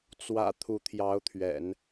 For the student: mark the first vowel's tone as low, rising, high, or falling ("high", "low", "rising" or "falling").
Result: low